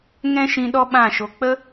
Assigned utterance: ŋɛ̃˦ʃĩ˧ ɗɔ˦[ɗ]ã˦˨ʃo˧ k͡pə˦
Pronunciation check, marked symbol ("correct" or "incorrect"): incorrect